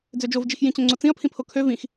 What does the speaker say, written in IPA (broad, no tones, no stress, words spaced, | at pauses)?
d͡zød͡ʒovd͡ʒix jĩt͡ɕõŋ͡ǀot͡sĩɐ̯ pʰĩpʰokʰø vĩx